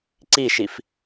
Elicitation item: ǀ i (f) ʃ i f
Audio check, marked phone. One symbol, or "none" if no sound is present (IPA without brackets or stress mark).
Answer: none